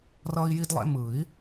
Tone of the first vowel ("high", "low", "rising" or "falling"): high